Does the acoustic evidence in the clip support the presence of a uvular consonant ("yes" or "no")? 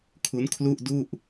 no